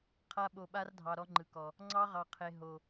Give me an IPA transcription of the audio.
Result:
qʰ a˦ ɓ o˨ ɓ a˦ r dʱ ɑ˨ ɾ ɔ˦ ŋ͡ǃ ɯ˨ k ɔ˨ | ŋ͡ǀ ɑ˦ ʁ ɑ˨ qʰ e˨ ɦ o˨

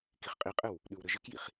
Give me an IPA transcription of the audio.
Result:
k i χ qʼ i qʼ ɘ w | ɗ ʉ w ɾ ɘ ʒ ɪ k j ḭ χ

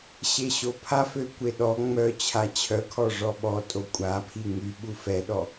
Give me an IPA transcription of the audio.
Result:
ɕ e ɕ o pʰ a f ø kʷ e ɗ ɔ ŋ͡m œ t͡ɕʰ a t͡ɕʰ œ kʰ ɔ ʐ ɔ ɓ ɔ tʼ o kʷʼ a pʰ i ŋ y ɓ u f ɛ ɗ ɔ

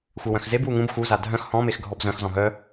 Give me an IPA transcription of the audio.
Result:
xʷ œ w œ̃ x z e b w u ŋ ũ b x u z a dʱ œ̃ x h ɔ̃ m e x ɡʱ ɔ b z œ̃ x z ɔ̃ ɦ œ

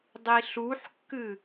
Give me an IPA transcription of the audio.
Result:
dˤ i ɬ u ħ kː ɨ

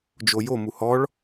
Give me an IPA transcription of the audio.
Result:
d͡ʒ o j o m u h ɔ ɭ

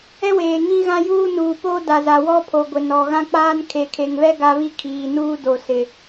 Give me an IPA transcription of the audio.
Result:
ɛ˦ w eː˨ ŋ ĩ˦ ɣ ã˦ j uː˦ n uː˨ p oː˦ d a˨ z a˨ w ɔ˦ pʰ o˨ ɡʷ ɪ˨ n ɔ˨ ɣ ã˦ k͡p aː˦ n kʰ e˨ kʰ e˨ ŋ β ɛ˦ ɡ a˦ β i˦ kʰ iː˨ n uː˦ d o˨ s ɪ˨

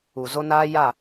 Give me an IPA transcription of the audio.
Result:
u˨ z o˦ n aː˦ j a˦˨

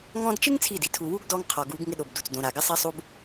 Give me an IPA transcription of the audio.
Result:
ŋ ɔ̃˧ d t͡ʃ ɪ˦ ŋ t͡sʰ i˦˨ d i˨ tʰ u˨ w u˦ ɡ d ɔ˧ ŋ qʰ ɔ˨ ɡ u˨˦ ɡ ŋ ɪ˦ ɗ o˨ b d u˨ t͡s d õ˧ ɾ a˨ ɡ ɪ˦ sˤ i˦ sˤ u˦ b

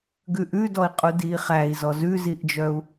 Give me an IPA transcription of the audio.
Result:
ɡ ʉ ʔ ʉ d ɔ i̯ qʼ u d iː χ æ i̯ z ɔ z ʉ z i ʔ d͡ʒ œ u̯

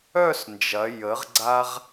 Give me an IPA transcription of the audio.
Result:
œ˥˧ s n d͡ʒ ɐ˩˧ j ə˩˧ ʁ ɡ͡ǀ a˧ ʁ

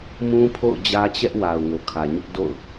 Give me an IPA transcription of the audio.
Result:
m ũ˦ pʰ o̰˦˨ ʊ̯ d͡ʑ ä˦ t͡ɕ ɛ˦ ʔ w a˨ ʊ̯ ŋ o˨ kʰ ä˨ ɲ ʊ˦ ʔ d o̰˦˨ ʊ̯

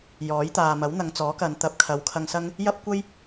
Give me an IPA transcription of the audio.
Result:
j ɔː˨˥ j t̪ aː˨ m ɐ˨˥ w n̪ ɐ˨˧ ŋ t͡s ɔː˨˥ k ɐ˨˧ n t̪ ɐ˨˥ p̚ kʰ ɐ˨˥ w kʰ ɐ˧ ŋ s ɐ˥ ŋ | j ɐ˥ p̚ kʷ ɐ˥ j

